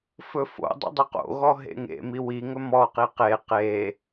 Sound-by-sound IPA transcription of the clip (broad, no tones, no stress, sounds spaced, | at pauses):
f ɵ f o̰ dˤ o̰ dˤ ɵ q o̰ ɣ ɔ ɦ ḛ ŋ ḛ m i w i ŋ ɵ m ɔ q i q e q e